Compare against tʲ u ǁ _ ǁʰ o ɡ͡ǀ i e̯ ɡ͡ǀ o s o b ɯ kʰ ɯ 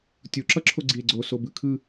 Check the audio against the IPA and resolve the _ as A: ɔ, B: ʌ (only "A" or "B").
B